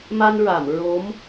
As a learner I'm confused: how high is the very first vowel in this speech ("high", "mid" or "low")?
low